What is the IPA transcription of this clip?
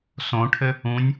sõʈʰɘ | ũnʲ

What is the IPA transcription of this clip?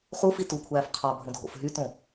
χufi tukʷʰæːf qʰɑbʱõdʱo̰f ɦytõ

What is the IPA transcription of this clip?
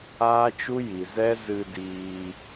aː˦t͡ʃu˦ ji˨zɛ˦ zɨ˧diː˧

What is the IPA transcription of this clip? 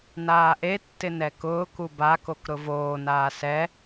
naːʔetːɪ nɛkʊːku bakok ɾʊvoːnaː sɛ

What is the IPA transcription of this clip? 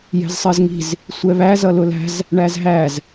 jɛ̤zsˤɜzŋi̤z | sʷɛβæ zʌlʊlæ̤z | ɳæzɦæz

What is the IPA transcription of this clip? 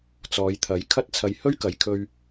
t͡sɔː˨˧jt̪ʰɐ˨˥j kʰɐ˥t̚t͡sʰɐ˧j hɵ˥ɥkɐ˨jkʰɵ˧ɥ

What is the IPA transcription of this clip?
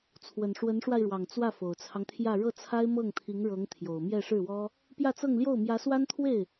t͡sʰwə˨˩nʂwə˧˥nʂwa˧ɪ̯ɻwɑ˨˩ŋ t͡swä˥˩fo˨˩ʊ̯t͡sʰɑ˦ŋt̪ʰjä˥˧ ɻɤ˥˩t͡sʰa˥ɪ̯mɤ˥˩ŋt̪ʰi˧˥ŋ ɻɤ˧˥ŋt̪ʰjo˨˩ʊ̯ mjɛ˥˧ ʂɻ̩˥˩wɔ˥ | pjä˥˧t͡sɤ˥˧ŋljo˥˩ʊ̯ mjä˧˥swa˥nt̪ʰwe˥˩ɪ̯

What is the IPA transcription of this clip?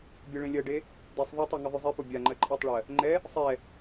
bʲɜɭẽlʲɜɖe | desˤ ðˤotˤe ŋɘðˤʉzˤipo bʲaŋ͡ǃɜ ǃʼɜtˤɭɜ | ŋ͡ǃɛ | sˤɛ

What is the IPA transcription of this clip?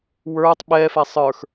wə˞tˤ ɓɛfɛ sˤə˞x

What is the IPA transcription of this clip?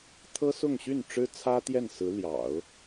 t̪ʰɤ˥sʊ˥˧ŋɕy˥˩n ʈ͡ʂɻ̩˥t͡sʰä˥ t̪jɛ˥˩nsɹ̩˧˥ljɑ̰˨˩˦ʊ̯

